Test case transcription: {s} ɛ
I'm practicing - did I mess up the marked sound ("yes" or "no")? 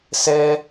no